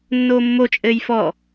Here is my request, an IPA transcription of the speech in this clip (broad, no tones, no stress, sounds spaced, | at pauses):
nː oː mː o t͡ʃʼ ɘː j f ɔ